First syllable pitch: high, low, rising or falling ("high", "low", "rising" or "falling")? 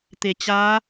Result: low